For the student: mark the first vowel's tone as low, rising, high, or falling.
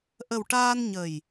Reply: low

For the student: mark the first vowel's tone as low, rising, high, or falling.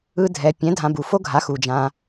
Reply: high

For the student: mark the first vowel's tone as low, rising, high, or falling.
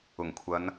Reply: low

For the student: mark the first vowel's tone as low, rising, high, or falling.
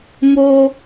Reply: high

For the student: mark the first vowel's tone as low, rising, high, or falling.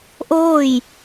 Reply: falling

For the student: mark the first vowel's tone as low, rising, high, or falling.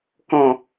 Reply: falling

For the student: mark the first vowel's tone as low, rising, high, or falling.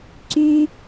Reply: high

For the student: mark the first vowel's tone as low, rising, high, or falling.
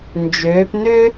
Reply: rising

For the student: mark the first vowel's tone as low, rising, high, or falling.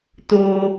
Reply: high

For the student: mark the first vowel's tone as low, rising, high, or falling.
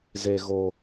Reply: low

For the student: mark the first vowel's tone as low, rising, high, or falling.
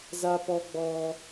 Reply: high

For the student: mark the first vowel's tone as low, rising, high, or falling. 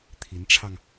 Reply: rising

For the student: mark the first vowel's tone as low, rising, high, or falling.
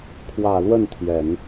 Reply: low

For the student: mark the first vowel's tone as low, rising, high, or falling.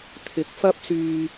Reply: low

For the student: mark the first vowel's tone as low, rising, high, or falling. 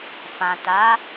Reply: low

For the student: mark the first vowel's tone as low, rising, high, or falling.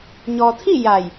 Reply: low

